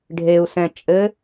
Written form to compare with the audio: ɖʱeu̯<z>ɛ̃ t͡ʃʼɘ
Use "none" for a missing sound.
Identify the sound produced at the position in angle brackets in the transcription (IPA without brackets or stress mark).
s